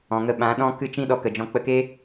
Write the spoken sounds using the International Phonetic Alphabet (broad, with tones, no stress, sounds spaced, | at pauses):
ɔ̃˨ ŋ ə˧ ɓ ã˨˦ ɗ ɔ̃˦ k ɨ˦˨ t͡ʃ ĩ˦ ɗ ɔ˨˦ k ə˨ d͡ʒ ɔ̃˧ k͡p ə˧ k e˦